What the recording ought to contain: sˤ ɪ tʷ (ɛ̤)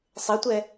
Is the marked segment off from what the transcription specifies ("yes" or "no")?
yes